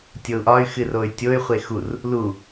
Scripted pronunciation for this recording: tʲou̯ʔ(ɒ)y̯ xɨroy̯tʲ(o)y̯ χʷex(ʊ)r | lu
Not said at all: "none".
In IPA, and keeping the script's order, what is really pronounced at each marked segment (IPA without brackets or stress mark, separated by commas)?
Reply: ɒ, o, u